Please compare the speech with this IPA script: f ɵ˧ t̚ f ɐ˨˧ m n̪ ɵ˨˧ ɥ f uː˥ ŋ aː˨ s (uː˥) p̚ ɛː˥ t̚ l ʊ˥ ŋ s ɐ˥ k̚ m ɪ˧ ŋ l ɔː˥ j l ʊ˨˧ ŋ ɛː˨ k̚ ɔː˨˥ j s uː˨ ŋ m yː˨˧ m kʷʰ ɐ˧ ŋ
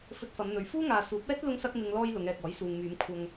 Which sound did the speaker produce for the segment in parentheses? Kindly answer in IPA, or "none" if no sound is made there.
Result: uː˨˥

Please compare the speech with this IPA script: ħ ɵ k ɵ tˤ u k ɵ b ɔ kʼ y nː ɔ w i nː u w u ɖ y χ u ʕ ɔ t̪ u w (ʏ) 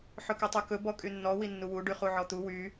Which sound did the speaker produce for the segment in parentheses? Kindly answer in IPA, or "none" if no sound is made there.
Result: y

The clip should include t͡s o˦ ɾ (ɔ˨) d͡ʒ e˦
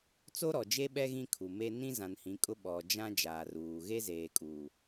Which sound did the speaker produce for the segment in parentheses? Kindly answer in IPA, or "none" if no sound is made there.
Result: ɔ˨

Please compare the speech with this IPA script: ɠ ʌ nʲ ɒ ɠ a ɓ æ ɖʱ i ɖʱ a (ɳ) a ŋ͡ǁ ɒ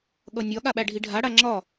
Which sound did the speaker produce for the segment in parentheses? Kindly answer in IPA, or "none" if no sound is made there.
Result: ɽ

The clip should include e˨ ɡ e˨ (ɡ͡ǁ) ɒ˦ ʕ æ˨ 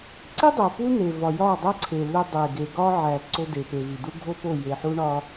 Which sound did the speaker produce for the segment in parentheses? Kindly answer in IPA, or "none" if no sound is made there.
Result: ɡ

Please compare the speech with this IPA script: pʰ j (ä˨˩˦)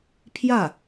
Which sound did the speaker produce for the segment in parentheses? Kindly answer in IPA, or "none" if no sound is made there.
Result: ä˥˩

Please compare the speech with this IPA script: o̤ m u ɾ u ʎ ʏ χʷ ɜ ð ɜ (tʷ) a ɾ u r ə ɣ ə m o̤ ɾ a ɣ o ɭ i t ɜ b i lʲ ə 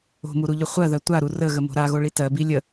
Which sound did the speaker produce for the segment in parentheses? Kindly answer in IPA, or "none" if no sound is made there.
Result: tʷ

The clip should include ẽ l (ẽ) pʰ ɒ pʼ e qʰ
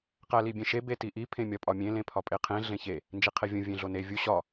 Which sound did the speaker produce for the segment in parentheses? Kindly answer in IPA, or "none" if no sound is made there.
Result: ẽ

